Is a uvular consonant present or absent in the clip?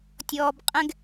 present